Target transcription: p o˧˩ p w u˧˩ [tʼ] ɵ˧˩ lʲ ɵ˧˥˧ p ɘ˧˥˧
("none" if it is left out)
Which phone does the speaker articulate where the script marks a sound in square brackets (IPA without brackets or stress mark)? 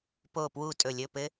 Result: tʼ